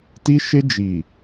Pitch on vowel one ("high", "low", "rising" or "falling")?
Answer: high